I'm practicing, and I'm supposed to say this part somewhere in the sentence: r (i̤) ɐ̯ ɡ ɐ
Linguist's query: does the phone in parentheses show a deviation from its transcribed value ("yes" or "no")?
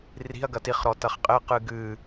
no